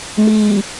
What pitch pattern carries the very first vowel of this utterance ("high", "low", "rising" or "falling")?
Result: low